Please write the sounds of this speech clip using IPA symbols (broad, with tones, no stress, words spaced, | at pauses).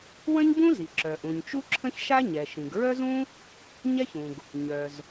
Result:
wə̃˥ɲbũ˥zi˩ ǁœ˩ ʔũ˩ɲt͡ʃu˥ǁʰə̃˥ç ʃa˥ɲɛ˩ʃĩ˩ɡ ɹœ˥zũ˥ | ɲɛ˥çũ˩ɡ | ɲœ˩z